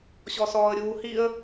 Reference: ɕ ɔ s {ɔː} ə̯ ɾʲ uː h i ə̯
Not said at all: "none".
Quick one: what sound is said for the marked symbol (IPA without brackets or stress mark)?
ɔː